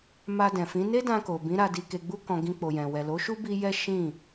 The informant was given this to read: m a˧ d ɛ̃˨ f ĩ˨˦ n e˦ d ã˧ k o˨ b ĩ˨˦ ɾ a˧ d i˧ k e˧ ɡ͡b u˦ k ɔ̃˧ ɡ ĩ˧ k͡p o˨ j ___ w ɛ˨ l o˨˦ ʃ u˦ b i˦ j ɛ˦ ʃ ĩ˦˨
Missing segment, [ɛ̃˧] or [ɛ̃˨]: ɛ̃˨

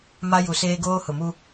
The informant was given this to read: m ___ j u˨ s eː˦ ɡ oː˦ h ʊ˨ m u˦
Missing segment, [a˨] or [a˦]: a˦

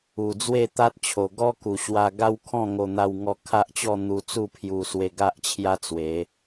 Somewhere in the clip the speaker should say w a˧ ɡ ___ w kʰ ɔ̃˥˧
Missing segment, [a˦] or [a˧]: a˦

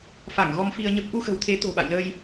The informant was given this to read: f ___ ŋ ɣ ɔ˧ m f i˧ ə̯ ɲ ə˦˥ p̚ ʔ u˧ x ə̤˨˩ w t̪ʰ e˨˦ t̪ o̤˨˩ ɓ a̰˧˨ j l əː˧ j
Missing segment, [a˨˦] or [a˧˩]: a˧˩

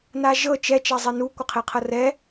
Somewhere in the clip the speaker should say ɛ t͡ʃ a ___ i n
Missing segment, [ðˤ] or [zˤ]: zˤ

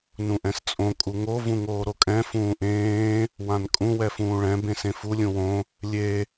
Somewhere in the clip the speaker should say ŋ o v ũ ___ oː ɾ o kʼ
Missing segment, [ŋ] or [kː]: ŋ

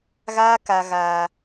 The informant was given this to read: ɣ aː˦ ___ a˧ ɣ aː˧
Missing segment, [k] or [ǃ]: k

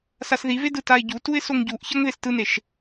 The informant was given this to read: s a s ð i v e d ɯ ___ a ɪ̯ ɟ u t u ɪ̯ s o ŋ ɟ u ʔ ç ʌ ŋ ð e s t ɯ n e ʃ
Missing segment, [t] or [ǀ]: t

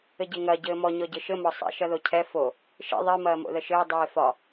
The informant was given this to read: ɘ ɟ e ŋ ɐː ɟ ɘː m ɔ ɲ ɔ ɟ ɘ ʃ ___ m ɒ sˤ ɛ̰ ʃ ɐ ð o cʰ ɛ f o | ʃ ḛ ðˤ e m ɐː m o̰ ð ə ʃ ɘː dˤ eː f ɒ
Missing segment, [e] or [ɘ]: ɘ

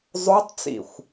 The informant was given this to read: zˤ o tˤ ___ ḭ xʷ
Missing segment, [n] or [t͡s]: t͡s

